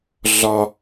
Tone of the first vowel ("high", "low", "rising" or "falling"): high